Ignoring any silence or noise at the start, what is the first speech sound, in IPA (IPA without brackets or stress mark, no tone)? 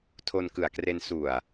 tʰ